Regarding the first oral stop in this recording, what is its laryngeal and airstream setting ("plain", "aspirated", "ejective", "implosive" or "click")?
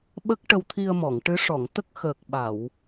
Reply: implosive